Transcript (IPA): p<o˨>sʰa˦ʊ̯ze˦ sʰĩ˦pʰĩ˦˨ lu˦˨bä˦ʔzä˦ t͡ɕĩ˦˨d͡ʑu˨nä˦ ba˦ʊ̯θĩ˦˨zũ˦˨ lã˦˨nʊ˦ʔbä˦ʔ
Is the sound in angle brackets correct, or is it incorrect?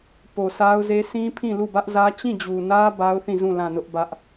correct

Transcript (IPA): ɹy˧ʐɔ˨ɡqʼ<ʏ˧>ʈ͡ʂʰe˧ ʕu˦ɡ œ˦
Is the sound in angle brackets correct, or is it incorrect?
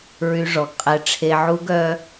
incorrect: ɛ˧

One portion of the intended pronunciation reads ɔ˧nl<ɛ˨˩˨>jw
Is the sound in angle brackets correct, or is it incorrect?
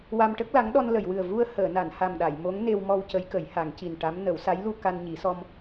incorrect: ə˨˩˨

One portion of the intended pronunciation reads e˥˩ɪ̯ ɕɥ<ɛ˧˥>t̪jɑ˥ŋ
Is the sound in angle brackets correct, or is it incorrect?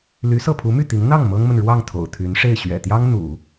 incorrect: ɛ̰˨˩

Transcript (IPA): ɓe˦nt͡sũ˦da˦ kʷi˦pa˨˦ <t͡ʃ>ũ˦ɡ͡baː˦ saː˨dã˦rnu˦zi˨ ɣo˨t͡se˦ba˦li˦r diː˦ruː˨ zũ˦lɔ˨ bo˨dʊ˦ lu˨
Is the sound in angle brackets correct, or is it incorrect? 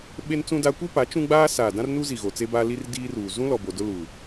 correct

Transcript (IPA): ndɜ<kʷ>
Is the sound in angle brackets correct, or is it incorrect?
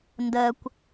correct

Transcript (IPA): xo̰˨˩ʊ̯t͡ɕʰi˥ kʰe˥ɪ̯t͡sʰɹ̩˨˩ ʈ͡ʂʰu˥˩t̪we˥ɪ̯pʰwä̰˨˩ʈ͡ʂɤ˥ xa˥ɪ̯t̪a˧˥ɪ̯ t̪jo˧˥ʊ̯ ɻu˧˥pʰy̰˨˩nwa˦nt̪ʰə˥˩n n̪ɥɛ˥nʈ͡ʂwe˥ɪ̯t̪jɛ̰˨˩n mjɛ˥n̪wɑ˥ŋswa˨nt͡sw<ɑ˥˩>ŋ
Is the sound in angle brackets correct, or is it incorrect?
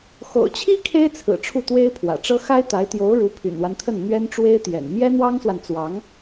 incorrect: ɑ˧˥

